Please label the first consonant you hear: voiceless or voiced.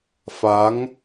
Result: voiceless